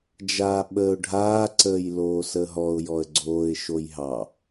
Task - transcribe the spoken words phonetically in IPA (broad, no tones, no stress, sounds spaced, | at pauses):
d͡ʒ aː ɓ əː ʊ̯ ɖʱ aː ǀ əː j l oː s əː ɦ ɔ ʊ̯ j ɔ ə̯ ɡ͡ǀ oː ɪ̯ ʃ o j ɦ ɑ